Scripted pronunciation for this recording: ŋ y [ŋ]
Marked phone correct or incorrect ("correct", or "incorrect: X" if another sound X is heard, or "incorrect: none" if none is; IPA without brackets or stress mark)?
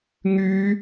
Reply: incorrect: none